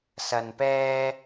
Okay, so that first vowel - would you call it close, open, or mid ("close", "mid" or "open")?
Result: open